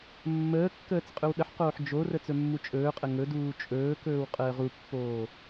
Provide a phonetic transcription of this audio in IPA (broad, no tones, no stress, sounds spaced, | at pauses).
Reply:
mː əː kː əː t͡s qʼ ɵ w ɗ ə ħ q oː ħ d͡ʒ o r ə t͡s ɵ mː u t͡ʃʼ ɵː qʼ ə ŋ ɵ d uː t͡ʃʼ ɵː k ɵː w qʼ əː ʁ u pː oː